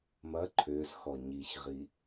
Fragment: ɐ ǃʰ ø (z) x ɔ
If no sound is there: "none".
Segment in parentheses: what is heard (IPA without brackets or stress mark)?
z